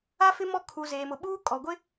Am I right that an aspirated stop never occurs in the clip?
no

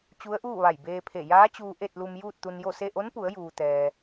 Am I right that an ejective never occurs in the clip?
yes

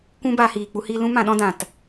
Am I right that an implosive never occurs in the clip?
no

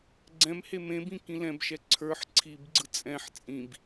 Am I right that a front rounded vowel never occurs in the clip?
yes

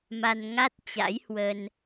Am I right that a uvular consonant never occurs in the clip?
yes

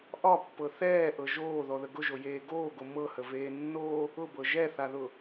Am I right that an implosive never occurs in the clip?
yes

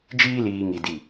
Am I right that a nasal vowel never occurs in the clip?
yes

